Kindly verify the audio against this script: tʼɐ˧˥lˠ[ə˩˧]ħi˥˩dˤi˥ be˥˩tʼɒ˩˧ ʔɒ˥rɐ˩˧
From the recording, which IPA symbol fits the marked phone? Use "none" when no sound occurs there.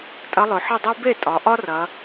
ɵ˩˧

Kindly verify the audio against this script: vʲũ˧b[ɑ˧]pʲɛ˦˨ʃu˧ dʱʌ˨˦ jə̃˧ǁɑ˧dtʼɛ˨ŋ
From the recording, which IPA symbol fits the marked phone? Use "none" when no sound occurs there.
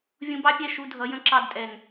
ɑ˦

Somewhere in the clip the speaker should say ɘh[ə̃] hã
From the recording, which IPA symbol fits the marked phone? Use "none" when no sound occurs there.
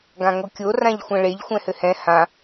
ɛ̃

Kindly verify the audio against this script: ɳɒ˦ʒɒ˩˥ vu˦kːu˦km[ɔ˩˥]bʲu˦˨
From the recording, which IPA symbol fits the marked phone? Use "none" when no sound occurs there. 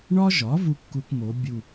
o˩˥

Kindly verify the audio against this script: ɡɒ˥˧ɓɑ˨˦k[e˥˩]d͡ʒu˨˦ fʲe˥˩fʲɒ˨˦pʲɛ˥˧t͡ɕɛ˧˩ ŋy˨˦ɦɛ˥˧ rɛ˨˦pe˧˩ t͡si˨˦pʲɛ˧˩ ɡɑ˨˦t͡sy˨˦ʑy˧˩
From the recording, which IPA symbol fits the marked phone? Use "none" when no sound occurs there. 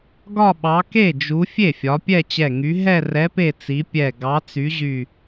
e˥˩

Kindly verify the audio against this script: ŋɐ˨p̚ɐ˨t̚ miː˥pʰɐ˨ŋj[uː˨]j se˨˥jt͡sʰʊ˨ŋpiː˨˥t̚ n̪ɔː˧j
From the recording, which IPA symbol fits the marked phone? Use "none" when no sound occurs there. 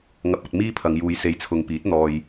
uː˨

